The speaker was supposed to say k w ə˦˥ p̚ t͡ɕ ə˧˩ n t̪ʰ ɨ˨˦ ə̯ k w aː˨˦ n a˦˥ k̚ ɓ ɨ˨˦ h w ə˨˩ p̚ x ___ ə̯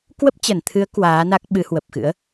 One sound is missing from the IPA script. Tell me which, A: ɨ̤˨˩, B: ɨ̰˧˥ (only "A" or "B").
B